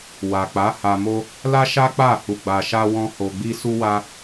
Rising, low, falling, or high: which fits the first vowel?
low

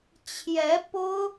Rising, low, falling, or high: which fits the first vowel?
rising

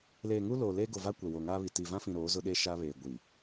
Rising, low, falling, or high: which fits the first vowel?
low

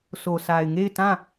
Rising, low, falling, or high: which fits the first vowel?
low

